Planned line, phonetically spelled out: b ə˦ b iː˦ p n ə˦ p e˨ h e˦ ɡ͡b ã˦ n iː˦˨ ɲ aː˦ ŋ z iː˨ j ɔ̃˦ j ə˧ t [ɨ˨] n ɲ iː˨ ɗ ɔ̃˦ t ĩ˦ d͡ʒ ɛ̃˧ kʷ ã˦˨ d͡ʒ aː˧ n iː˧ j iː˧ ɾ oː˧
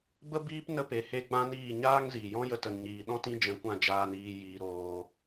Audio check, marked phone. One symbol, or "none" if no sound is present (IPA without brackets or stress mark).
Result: ə˨